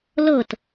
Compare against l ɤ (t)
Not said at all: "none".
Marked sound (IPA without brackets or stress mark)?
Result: t